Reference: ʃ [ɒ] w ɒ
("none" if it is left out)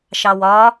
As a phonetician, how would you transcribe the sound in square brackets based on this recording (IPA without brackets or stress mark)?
ɑ